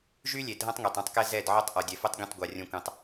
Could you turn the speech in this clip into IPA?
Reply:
ʒ y˦ lʲ e˨ dʱ ɐ̃˦ tˤ ŋ e˨ tˤ ɐ̃˦ tˤ k ɛ˦ z ɛ˦˨ d ʕ ɔ˦ tˤ ʔ ɔ˨ dʲ ɛ˨ f o˦ tˤ ɡʲ õ˦˨ tˤ ɡʷ a˨ rʲ õ˦ kʷ ẽ˦ tˤ

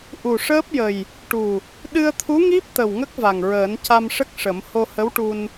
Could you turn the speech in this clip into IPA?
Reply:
ʔ u˨˩ ʂ əː˦˥ p̚ j ə˨˩ j | ʈ u˨˩ | ɗ ɨ˧ ə̯ t̪ʰ u˧˥ ŋ i˦˥ p̚ t̪ ə˨˩ w ŋ ə˦˥ k̚ v a˨˩ ŋ ɹ əː˨˩˦ n c a˧ m ʂ ə˦˥ k̚ ʂ ə˨˩˦ m h o˧ h ə˧˥ w ʈ u˧ n

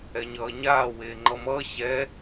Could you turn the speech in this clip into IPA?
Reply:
ɛ ɲ ʌː ɲ aː w eː ŋ͡ǃ ʌ m ʌː ɕ ɛ

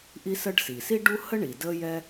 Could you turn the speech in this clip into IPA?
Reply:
ʔ i˥ s ə˥ ɖ s i˩ s i˥ ɖ u˥ h ə˥ ɳ i˩ d ə˥ j ɛ˥

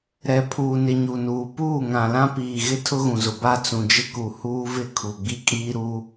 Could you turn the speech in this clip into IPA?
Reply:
ɾ ɛ˨ pʰ uː˨ n ɪ˨ ɲ u˨ n uː˨ p uː˦˨ ŋ ã˨ l ã˦ p iː˨ ɣ ɪ˦ tʰ ʊ˦ ɣ ũ˨ z ʊ˨ b a˦ t͡s ũ˨ d͡ʒ ɪ˦ k u˨ h uː˦ v ɪ˦ kʰ u˨ ɡ͡b i˦ kʼ iː˦ ɾ u˦

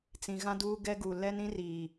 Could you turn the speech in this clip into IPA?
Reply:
t͡s ĩ˨ ɣ ã˦ d uː˦ ɡ ɛ˦ ɡ u˨ l ɛ˦ n ĩ˦ r iː˨

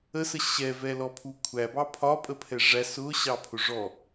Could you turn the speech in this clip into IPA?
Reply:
ə s ə ɕ ɛ v ɛ l ɔ pʰ u kʷʰ æ b ɑ pʰ ɒ pʼ ə pʰ ɛ ʐ æ s ʊ ɕ ɑ pʰ ʊ ʐ ɔ

